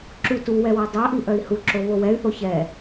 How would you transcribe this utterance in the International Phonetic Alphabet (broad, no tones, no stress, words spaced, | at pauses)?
ǁu tuwɛ wœdˤœʔi ʔœi̯huǁo βowɛy̯θo çɛ